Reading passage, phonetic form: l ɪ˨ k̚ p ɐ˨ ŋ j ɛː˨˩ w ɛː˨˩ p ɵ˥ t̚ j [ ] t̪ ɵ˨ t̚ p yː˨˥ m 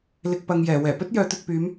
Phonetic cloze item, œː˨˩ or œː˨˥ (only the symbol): œː˨˥